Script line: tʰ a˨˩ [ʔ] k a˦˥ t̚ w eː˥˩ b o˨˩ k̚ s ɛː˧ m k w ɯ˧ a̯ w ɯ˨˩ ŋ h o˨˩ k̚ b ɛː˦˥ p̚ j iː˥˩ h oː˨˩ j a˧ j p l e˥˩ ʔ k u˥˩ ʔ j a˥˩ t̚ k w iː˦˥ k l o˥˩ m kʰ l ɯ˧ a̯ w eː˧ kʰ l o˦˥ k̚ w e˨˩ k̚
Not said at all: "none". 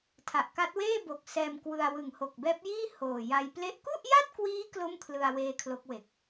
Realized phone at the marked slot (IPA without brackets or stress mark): ʔ